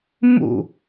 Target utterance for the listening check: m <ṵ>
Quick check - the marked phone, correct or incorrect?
correct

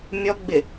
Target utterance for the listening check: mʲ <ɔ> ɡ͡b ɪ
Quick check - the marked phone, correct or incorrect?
correct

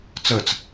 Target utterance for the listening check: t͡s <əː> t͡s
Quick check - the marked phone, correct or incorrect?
correct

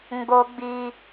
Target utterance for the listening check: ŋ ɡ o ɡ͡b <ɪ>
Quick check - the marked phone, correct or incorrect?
incorrect: i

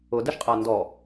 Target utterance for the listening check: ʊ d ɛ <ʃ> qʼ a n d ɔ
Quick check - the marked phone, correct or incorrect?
correct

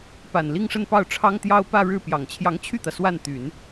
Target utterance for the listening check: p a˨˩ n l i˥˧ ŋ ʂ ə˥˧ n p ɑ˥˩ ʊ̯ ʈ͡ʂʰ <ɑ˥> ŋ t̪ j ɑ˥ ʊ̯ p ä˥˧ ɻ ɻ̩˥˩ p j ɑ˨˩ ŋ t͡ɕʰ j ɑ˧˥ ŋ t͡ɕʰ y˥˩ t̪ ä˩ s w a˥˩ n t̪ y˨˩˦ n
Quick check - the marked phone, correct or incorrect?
correct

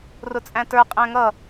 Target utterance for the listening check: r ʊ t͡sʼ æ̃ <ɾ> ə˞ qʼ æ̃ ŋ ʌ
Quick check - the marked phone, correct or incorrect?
incorrect: t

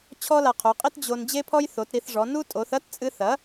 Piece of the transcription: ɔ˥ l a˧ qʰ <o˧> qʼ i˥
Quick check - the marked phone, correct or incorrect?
incorrect: o˩˥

